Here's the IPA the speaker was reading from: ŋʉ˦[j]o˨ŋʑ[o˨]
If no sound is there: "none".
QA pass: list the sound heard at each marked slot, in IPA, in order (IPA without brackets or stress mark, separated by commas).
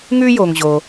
j, o˨